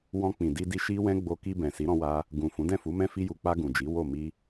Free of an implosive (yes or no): yes